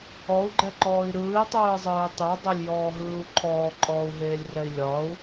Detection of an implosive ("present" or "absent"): absent